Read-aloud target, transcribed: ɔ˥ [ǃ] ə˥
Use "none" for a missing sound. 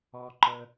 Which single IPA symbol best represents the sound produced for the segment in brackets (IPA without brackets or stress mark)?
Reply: ǃ